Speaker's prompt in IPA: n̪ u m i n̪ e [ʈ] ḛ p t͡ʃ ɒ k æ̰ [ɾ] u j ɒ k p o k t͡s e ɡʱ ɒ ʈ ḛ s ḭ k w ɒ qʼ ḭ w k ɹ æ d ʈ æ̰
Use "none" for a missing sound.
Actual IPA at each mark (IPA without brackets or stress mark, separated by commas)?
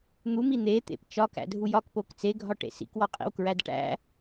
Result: t̪, dʱ